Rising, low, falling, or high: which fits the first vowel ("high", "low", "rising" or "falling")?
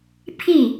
falling